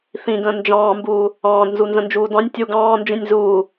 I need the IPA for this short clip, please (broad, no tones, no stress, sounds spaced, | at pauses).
θ ĩ ɡ ə̃ː n d͡ʒ ɑ̃ː m b uː | ɑ̃ː d n z u n z ə̃ n d͡ʒ uː d ɑ̃ nʲ tʲ u ɡ ɑ̃ː n d͡ʒ ĩ nʲ z uː